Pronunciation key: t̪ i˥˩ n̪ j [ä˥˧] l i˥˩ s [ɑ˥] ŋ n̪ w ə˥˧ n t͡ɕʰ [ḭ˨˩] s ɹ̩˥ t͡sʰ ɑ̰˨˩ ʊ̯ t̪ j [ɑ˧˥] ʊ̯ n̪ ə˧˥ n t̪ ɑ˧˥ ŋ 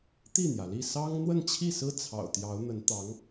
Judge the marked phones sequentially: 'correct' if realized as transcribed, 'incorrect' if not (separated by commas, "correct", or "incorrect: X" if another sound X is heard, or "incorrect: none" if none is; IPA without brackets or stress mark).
incorrect: ä˩, correct, incorrect: i˥˩, correct